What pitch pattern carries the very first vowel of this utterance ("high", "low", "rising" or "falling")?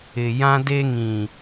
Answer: low